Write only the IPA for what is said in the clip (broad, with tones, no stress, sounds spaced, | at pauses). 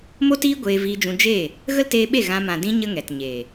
m o˦ t iː˦ ɡʷ eː˧ v iː˧ d͡ʒ ũ˧ d͡ʒ e˦˨ | ɣ ə˦ l t eː˧ ɓ e˦˨ ɣ ã˧ m ã˨ d ĩ˧ ɲ ə˦ ŋ ɛ˨ t ɲ e˨